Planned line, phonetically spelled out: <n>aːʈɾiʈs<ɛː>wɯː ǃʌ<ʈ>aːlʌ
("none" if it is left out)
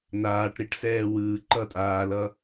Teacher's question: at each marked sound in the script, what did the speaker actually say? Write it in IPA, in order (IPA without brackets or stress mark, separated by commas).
n, ɛː, tʼ